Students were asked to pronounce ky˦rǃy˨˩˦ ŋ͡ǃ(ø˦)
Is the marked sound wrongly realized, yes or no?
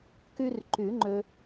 no